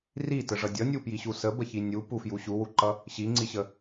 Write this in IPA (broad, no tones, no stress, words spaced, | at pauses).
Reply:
ritəʐʌ dʲʌnʲupjiɕu səbəçi nʲupufju ɕuwuǃʌ | ɕiŋ͡ǀiɕə